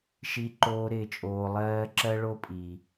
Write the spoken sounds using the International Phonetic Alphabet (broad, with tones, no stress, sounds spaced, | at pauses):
ʃ i˨ ǃ oː˨ ɾ ɪː˨ t͡ʃʼ oː˨ lˠ ɜː˦ ǁ ɜ˦ ɭ o˦ pʼ iː˨